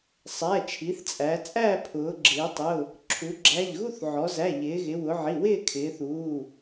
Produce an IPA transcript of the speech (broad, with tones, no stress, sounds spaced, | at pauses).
sˤ æ˩˧˩ t͡ʃʰ i˩˧ θ t͡sʼ æ˩˧ t͡sʼ æ˥˧ pʰ ʊː˩˧ ɡ͡ǁ ɪː˩˧ tˤ ʊ˩˧˩ | ǁʰ u˩˧ ɡ͡ǁ æ˩˧˩ ʎ ɣ u˥˧ θ ʕ ɔ˩˧ z æ˩˧˩ ʎ ɪː˩˧ ɣ ɪ˩˧ w ʊ˩˧ ʕ i˩˧˩ w ɪː˥˧ kʰ ɪː˩˧ θ uː˩˧˩